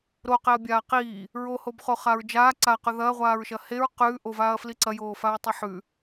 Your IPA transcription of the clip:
ɾ o q e ɐ̯ bʲ aː q iː | ɹ o h o b χ o χ a ɹ d͡ʒ aː ǀ a q ʉ ð ɐː ʁʷ aː ɹ ʃ ɐ h e ɹ q ʉː ʔ o v aː ɐ̯ f l i ǀ ɐ j oː f a ɹ tˤ e ħ ʉ

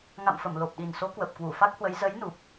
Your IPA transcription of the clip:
ŋ a̰˧˨ m f ə˧˩ m l o˨˩ p̚ ɗ i˨˩ n s o˨˦ k w ə˨˩ p̚ k w u˧˩ f a˦˥ k̚ h w ə˨˦ j z ə˨˦ j n u˨˩ p̚

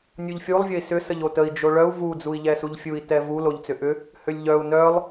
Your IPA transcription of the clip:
nʲ u ʎ fʲ u lˠ vʲ ə i̯ s ʏ s ə ʎ o t ə i̯ d͡ʒ o ɭ œ u̯ v u d͡z u i̯ ʎ ɛ s u ʎ fʲ u i̯ t ɛ v u l o ʎ t͡s ʏ ʔ ʏ | h ʏ lʲ ʎ œ u̯ n œ lˠ

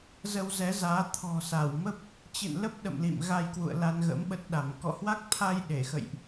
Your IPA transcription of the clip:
z ə˧ w z ɛ˨˦ z aː˨˦ t̪ʰ ɔ̤˨˩ s a˧˩ w m ə˦˥ p̚ | t͡ɕ ɨ̰˧˨ n l ə˦˥ p̚ ɗ ə̰˧˨ m l ḭ˧˨ m ɣ a˧ j k w ṵ˧˨ ə̯ l a˧ n ɣ ə̰˧˥ m ɓ ə˦˥ t̚ ɗ a˧˩ m k ɔ̰˧˨ h w a˦˥ k̚ t̪ʰ a˧ j ɗ e˧˩ x ə̰˧˨ j ʔ

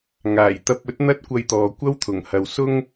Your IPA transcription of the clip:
ŋ aː˨˩ j t̪ ɐ˧ p̚ ɵ˥ t̚ n̪ ɐ˥ t̚ kʷ ɐ˧ j t̪ ɔː˨ kʷ ɐ˥ w t̪ʰ ʊ˨˩ ŋ h ɐ˨ w s ʊ˥ ŋ

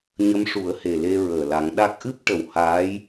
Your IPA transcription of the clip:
ɲ ə˧˥ m ʂ u˨˩˦ ə̯ h e˨˩ l e˧ ɹ əː˨˩ l a˨˩˦ ŋ ɗ a˦˥ k̚ ʔ ɨ˦˥ p̚ ʈ ə˨˩ w h aː˧˥ j

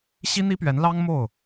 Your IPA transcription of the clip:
ɕ i˥ n̪ i˥ p ɥ ɛ˧˥ n l ɑ˥ ŋ m o˥˩ ʊ̯

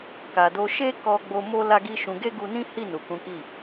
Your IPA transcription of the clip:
k a˨ d o˧ ʃ e˦ k ɔ˧ ɡ͡b o˧ m o˦ l a˦ ɡ i˦ ʃ ũ˧ ɡ e˦ ɡ u˧ n ĩ˦ h i˦˨ n u˨ k ũ˨˦ k i˦˨

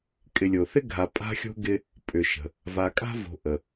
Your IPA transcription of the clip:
kʼ ɪ˨ lʲ o˩ θ ɪ˥ ɡʱ a˨ pʼ a̤˥ xʲ o̤˥ ɡ ɪ˦ | pʼ ʏ˩ ʃ ə̤˩ | v a˨ kʼ a̤˥ v o̤˨ ʔ ə˩

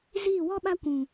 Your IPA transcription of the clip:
z iː˦˨ w ɔ˦ ɓ a˦ kʷ ũ˨

